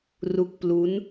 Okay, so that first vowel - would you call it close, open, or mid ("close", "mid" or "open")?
close